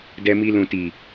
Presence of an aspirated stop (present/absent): absent